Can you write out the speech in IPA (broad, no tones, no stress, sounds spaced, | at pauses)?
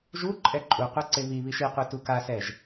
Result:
ʒ u ǃʼ ɛ ǃʼ u qʷ e ǀ e β i β i ʃ i qʷ i t u k a s ɛ ʒ